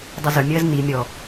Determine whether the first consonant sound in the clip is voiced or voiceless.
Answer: voiced